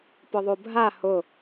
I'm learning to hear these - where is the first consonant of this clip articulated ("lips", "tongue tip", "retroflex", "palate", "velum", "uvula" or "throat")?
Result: lips